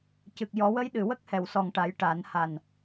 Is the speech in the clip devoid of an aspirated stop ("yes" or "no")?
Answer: yes